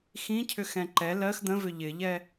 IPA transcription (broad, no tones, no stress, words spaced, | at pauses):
xĩcʰʏxɛ̃ ǃɛ lɜx d̪ə̃vʏ ʎɪʎɛ